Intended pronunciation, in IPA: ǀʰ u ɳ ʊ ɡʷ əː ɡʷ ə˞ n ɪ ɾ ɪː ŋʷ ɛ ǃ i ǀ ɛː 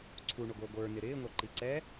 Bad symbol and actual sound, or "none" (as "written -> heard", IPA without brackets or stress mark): none